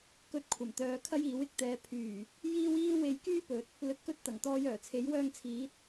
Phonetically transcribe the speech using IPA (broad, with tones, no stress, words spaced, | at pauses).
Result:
kɵ˧t̚kʷʰɐ˨˩mt̪œː˨ kʰɐ˥jiː˨˥wɪ˧k̚t̪ɛː˨˧ pʰyː˨˩ | jiː˥wiː˥we˧j kyː˥pɵ˨˥t̚ | lɵ˨˥t̚kɵ˧t̚ t̪ɐ˨˩ŋt̪ɔː˧jœː˨˩t͡sʰe˨˥j wœː˧ŋt͡sʰiː˨˥t̚